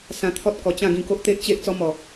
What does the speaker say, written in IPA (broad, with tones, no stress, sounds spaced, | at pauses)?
s ã˧ t̪ʰ ɔ˦ t̚ k ɔ˨˩ t͡ɕ ã˥˧ ɡ ĩ˧ k o˦ ʔ t̪ e˦ ʔ t͡ɕ e˦ ʔ t͡s ɔ˧ m ɔ˨˩